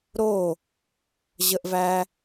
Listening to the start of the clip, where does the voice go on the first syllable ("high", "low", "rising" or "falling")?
falling